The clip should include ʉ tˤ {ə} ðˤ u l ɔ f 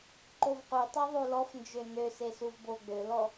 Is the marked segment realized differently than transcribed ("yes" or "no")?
yes